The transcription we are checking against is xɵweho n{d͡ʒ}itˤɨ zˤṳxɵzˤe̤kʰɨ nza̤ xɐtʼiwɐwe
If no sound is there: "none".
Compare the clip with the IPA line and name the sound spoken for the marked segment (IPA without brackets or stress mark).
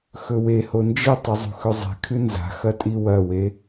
d͡ʒ